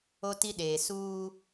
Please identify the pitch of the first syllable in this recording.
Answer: high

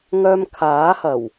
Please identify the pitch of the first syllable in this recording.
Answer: high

